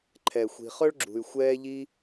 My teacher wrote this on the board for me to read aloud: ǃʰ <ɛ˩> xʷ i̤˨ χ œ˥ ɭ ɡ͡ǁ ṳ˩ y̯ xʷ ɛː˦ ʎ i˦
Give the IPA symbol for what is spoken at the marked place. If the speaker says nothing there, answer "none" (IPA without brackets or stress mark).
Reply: ɛ˩